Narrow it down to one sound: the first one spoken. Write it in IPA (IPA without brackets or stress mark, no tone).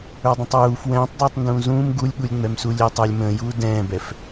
ə˞